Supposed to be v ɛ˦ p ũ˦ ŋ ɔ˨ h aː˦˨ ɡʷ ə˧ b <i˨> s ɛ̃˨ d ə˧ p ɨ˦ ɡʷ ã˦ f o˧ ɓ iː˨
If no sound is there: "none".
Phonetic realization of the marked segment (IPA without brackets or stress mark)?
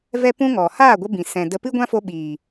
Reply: ĩ˨